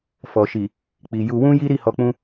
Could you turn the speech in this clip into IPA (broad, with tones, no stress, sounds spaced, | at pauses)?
f ɔ˨ ʃ i˨ | k͡p i˨ j u˧ w ũ˦ j i˦ ɾ i˦˨ h ɔ˧ k͡p ũ˦